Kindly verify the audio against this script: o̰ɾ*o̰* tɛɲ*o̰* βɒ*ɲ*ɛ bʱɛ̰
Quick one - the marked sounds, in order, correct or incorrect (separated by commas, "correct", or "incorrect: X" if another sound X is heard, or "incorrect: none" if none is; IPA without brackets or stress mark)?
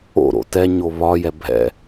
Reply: correct, incorrect: o, incorrect: j